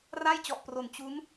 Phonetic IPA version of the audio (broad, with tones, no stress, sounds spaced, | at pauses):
r a˥˩ j t͡ɕ ɔ˨˩ ʔ p r o˨˩ n t͡ɕ u˦˥ n